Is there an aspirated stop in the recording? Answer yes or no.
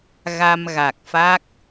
no